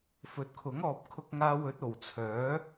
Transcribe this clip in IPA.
fɵ˨˥t̚kʰʊ˨˥ŋ ɔː˨p̚kʰʊ˧k̚ ŋaː˧wɵ˨˥t̚ o˨˩wt͡sʰœː˨˥

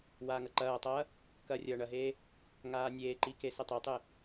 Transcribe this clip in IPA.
waːŋɐǃɐːtˤɐː | kɐːrʲɐːɳɐɦeː | ŋaːnʲeːǃi kesɘtˤetˤe

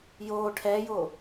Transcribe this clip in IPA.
joː ʈʰɛːjo

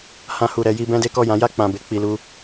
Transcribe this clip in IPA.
hã˧hu˨ɾɛ˧ji˧ bɛ̃˦de˦kɔ˦˨ jã˨˦ja˦˨ k͡pã˧be˦ k͡pi˧lu˦

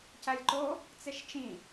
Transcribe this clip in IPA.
cælʲǃo | t͡seʃt͡ʃĩ

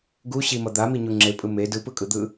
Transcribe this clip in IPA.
ɡu ɕimʌ d̪amiɲu ŋ͡ǁepʼɯ me dɯpɯkʼɯd̪ɯ

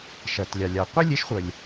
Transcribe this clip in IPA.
ʃɜ˩tlʲɑ˩ lʲɑ˩qʷe˥lʲe˩˥ʃχʷə˩lʲ

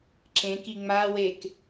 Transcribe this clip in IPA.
ǁẽk iŋ͡mawek

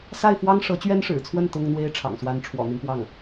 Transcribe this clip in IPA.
sa˥˩ɪ̯fwɑ˥ŋ ʂɤ˧˥t͡ɕɥɛ˥nʂɻ̩˨˩t͡sʰwə˥˩n t̪ʊ˥ŋn̪we˥ɪ̯ ʈ͡ʂʰɑ̰˨˩ŋswa˧˥n ʈ͡ʂʰwɔ̰˨˩n̪i˦npwɑ˥˩ŋ

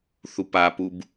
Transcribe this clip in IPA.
θupapub

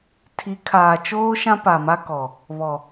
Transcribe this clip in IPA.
tʰi˨˦ kʰaː˨t͡ʃoː˦ʃã˦ pa˨ma˦kɔ˨ | βɔ˨

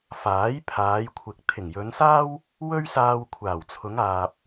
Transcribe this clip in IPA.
faː˨˥j pʰaː˨˧jkʷʰɪ˨k̚ t̪ʰɪ˨˩ŋjɵ˨˧nsaː˥w | wɵ˥ɥsaː˧w kʷʰaː˨˩wt͡sʰʊ˨˧ŋaː˨p̚

